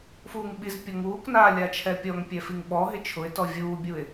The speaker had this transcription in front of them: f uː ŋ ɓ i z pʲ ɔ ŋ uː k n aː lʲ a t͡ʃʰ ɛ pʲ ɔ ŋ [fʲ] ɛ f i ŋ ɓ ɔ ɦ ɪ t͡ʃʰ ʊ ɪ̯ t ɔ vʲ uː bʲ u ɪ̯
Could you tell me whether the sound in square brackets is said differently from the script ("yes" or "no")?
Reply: yes